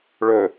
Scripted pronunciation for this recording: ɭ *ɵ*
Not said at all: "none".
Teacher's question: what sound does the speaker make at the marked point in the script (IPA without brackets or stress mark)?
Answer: ɵ